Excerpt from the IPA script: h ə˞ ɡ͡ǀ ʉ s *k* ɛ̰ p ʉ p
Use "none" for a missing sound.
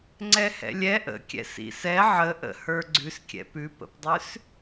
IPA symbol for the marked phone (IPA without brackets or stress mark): kʲ